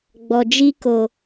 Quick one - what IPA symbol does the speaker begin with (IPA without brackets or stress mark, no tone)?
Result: ɡ͡b